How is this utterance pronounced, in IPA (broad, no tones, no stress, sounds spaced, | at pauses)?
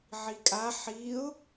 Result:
ʕ i kʼ a ħ i ʊ̯